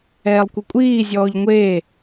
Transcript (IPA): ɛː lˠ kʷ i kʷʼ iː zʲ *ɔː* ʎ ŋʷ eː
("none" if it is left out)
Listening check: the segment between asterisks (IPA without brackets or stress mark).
ɔː